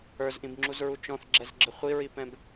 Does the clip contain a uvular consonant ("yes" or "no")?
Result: yes